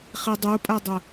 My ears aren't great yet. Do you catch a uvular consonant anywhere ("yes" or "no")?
yes